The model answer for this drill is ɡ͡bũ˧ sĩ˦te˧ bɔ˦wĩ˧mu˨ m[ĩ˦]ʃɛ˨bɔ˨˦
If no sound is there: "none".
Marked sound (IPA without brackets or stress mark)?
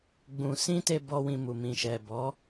ĩ˨